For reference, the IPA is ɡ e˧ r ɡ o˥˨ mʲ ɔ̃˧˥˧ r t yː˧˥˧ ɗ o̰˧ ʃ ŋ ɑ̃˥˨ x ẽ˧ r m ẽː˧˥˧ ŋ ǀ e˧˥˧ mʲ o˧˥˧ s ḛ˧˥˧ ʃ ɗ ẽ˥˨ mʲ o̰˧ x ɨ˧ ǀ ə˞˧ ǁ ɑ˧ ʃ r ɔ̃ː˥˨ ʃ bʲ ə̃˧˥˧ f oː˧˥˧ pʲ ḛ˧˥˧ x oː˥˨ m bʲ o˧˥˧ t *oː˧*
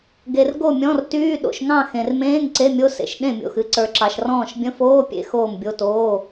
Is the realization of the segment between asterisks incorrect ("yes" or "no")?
yes